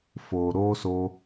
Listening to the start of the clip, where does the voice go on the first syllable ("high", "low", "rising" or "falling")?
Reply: low